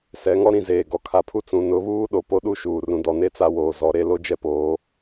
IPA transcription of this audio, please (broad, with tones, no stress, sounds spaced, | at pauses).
s ɛ˨˦ ŋ ɔ˦ ɾ ĩ˦˨ z eː˨ ɡ ɔ˨ kʰ a˨ pʰ u˦ t͡s ũ˨ n ʊ˨˦ β uː˦ ɗ o˨ p o˦ ɗ u˦ ʃ uː˨ r ũ˨ d ɔ˨ n e˦ t͡s a˦ w oː˨ z ɔ˨˦ ɾ e˦ l o˦ d͡ʒ ɛ˦ p oː˨˦